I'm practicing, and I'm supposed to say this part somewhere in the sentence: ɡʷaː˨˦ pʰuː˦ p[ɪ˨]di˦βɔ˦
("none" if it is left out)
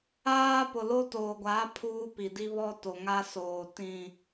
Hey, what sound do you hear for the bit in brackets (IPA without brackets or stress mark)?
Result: i˨